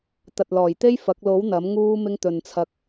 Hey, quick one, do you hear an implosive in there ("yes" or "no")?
no